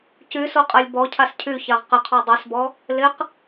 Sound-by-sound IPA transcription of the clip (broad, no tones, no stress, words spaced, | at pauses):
cysoqʼalʲ bɔcʰas cʰyçaʁ qɪqʰɔ dˤysbɔ | lɪq